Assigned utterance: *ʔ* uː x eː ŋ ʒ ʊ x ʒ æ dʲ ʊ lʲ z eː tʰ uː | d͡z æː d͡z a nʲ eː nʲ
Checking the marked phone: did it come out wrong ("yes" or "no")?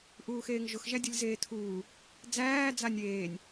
no